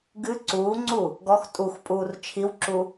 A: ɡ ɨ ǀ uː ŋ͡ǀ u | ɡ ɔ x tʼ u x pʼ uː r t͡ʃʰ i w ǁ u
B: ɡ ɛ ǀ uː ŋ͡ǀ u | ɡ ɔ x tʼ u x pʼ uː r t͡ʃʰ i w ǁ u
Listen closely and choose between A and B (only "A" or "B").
A